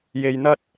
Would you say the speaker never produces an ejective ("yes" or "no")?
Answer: yes